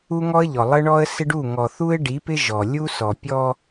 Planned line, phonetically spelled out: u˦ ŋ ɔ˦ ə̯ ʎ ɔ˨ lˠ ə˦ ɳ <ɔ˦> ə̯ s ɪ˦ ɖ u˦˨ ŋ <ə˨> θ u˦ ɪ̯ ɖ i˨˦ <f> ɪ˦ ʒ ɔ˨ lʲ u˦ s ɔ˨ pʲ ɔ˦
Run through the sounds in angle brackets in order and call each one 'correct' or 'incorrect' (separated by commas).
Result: correct, incorrect, incorrect